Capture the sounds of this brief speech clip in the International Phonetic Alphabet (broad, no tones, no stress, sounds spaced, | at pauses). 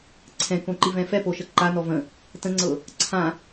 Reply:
ǀʰ ɛ̃ k õ ǃ i v ɛ̃ f ɛ p o ʃ ə ǃ a n ɔ v ə̃ | t ə̃ ŋ͡ǀ ɤ | ǀʰ ã